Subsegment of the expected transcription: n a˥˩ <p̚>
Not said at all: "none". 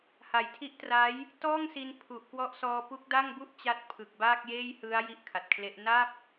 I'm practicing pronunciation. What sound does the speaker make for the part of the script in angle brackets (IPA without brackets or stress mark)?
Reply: p̚